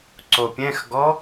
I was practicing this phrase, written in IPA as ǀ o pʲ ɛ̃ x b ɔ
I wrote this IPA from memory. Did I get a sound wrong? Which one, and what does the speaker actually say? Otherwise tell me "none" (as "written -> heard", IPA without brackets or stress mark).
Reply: b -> ɡ